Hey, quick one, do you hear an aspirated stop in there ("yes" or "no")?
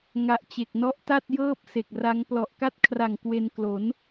yes